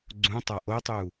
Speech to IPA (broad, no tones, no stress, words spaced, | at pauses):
ɡ͡ǀũtˤa ʔotˤu